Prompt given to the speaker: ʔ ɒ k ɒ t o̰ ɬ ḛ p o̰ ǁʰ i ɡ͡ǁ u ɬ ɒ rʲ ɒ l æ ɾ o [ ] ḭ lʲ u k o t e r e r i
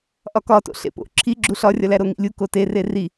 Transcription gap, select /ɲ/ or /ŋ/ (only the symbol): ŋ